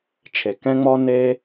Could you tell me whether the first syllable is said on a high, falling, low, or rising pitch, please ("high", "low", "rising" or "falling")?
low